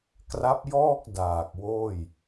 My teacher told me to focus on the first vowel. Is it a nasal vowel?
no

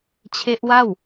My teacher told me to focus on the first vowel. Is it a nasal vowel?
no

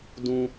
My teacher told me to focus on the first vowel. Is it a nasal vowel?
yes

